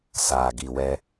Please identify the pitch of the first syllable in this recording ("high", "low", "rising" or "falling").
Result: low